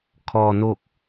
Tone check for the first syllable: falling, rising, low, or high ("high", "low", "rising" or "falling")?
low